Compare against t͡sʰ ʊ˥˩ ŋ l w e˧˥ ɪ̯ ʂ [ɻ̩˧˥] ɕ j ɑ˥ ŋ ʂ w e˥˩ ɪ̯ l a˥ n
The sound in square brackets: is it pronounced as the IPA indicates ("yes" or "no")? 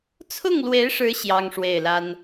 yes